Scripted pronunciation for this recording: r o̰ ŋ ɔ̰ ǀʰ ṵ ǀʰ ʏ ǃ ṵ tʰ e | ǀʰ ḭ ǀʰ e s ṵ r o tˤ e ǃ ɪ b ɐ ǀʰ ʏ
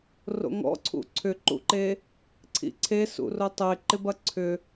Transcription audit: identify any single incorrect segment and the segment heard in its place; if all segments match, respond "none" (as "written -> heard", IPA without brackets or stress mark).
tʰ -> ǃ